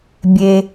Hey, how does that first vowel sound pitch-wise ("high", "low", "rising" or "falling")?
low